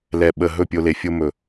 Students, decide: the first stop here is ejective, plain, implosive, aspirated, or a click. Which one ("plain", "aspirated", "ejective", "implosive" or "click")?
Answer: implosive